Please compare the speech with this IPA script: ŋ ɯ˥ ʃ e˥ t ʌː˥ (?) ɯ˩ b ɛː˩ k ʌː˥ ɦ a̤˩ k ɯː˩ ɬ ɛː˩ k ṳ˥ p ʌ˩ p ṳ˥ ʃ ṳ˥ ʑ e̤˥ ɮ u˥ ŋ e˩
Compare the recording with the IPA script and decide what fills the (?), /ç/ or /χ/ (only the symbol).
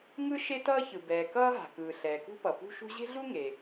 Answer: ç